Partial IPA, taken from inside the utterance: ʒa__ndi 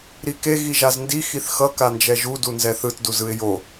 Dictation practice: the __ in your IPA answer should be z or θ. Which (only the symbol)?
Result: z